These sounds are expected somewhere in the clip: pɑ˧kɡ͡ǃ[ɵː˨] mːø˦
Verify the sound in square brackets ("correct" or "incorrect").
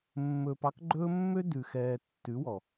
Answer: incorrect